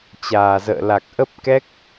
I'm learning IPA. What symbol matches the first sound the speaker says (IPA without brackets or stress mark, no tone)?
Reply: t͡ɕ